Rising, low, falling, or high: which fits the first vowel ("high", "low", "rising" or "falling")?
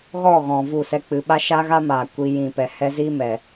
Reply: falling